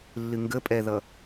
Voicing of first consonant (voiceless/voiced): voiced